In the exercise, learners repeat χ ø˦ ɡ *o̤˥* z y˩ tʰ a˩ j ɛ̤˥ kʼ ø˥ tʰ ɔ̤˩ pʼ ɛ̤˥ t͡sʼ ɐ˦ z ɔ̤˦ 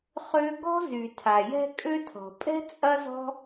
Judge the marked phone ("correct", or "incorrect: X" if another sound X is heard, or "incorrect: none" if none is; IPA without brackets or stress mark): incorrect: ɔ̤˥